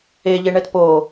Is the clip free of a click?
yes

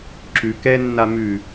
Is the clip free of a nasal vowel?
yes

